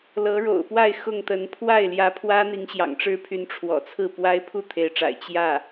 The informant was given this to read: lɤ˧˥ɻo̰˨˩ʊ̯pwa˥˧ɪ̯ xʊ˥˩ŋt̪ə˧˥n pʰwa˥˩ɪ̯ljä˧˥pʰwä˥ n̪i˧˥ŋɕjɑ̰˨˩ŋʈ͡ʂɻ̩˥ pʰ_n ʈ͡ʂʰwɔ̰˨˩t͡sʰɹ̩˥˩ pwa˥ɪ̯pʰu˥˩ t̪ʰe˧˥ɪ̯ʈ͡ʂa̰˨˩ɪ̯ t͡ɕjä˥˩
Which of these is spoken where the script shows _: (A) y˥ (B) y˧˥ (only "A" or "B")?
B